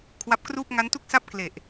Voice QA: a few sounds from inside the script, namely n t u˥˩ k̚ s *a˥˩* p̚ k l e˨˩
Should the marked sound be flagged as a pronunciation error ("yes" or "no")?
no